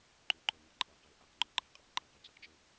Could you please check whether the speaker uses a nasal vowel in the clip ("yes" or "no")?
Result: no